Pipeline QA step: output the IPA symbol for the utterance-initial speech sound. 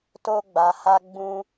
t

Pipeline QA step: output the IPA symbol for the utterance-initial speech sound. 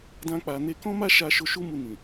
d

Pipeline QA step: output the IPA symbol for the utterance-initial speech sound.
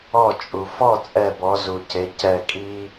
ɔ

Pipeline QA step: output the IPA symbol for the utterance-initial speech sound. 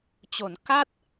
t͡ɕ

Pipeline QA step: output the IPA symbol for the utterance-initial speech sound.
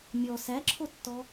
mʲ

